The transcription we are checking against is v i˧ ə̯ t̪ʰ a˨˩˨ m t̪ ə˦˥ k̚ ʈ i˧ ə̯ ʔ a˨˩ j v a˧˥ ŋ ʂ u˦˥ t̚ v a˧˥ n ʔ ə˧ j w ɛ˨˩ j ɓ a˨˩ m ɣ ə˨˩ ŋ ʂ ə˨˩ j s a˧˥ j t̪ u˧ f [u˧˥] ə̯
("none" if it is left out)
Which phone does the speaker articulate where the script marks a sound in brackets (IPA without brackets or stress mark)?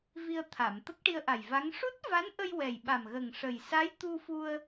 u˧